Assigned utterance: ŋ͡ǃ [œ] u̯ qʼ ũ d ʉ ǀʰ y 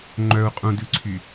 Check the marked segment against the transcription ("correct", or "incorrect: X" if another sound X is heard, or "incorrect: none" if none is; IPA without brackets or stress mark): correct